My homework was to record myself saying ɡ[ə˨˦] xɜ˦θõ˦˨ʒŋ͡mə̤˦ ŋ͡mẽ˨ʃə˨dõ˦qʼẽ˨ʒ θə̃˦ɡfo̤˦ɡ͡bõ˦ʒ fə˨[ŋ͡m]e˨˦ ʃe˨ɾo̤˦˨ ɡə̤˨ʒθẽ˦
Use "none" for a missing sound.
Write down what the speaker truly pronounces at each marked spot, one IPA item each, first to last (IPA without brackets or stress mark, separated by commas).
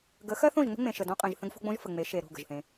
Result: ə˨˦, ŋ͡m